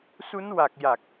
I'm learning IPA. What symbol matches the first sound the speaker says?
s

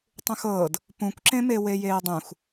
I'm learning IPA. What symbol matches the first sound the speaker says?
tˤ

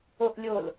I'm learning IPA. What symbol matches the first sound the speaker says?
o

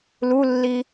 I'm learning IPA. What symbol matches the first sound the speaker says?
l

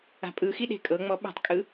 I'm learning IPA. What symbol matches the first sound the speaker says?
a̤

